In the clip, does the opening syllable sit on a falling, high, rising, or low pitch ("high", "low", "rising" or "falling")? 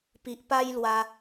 low